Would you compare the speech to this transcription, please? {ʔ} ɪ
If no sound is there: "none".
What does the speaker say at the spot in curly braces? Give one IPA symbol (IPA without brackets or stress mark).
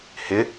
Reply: h